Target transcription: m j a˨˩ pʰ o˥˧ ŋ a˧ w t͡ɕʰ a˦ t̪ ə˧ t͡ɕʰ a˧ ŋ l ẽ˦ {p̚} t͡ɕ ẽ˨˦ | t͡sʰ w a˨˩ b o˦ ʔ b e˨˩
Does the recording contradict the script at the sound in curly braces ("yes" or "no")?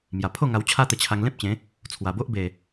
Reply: no